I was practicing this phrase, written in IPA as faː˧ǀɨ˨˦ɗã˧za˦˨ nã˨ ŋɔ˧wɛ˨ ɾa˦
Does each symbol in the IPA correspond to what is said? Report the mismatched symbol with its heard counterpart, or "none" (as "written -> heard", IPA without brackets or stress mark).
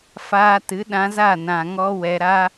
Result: ǀ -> t